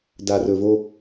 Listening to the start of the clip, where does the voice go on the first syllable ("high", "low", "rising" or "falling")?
low